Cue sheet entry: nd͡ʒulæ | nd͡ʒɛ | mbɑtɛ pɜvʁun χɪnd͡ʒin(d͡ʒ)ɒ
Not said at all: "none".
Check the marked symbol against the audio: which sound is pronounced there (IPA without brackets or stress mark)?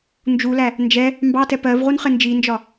d͡ʒ